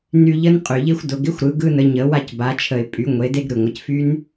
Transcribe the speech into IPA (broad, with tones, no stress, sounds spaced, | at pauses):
n y˧ ʎ ə˦˥ n qʼ y˩ ʎ ɪ˦˥ xʷ d ʊ˩˧ ɡ ɪ˦˥ xʷ ɾ ɯ˩˧ ɡ ɯ˧ n ə˩˧ ɲ ə˩˧ w a˧ c b a˩˧ t͡ʃʰ ə˩ ɪ̯ pʼ y˩˧ ŋʷ e˩˧ d e˧ ɡ ɾ ɯ˩ ŋʷ ə˩˧ c f y˦˥ n